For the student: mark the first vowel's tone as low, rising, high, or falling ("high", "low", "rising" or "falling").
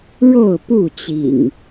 falling